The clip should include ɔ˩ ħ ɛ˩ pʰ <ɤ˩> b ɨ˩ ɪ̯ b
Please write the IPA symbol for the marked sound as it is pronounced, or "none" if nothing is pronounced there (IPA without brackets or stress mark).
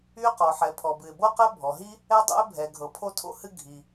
ɔ˩